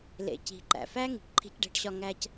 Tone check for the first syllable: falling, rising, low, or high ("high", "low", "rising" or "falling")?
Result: low